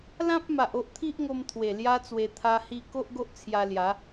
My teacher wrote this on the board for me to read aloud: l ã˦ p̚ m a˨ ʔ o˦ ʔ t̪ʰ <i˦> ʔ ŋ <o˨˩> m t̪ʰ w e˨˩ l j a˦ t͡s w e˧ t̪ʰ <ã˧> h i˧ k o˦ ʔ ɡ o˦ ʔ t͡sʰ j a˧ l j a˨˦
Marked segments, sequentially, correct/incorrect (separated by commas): correct, incorrect, incorrect